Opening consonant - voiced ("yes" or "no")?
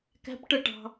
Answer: no